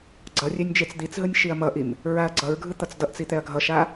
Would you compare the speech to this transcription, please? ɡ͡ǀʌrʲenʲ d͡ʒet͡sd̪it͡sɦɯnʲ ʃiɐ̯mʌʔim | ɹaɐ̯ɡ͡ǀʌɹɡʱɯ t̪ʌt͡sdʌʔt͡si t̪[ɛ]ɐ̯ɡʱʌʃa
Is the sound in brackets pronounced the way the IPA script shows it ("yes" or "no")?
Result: yes